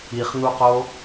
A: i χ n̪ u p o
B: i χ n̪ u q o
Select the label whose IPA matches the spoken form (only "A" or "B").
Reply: B